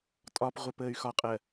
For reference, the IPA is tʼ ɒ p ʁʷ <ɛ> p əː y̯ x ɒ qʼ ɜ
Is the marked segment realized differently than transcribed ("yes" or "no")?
no